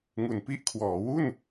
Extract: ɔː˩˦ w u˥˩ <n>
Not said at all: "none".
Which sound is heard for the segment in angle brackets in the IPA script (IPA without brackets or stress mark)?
n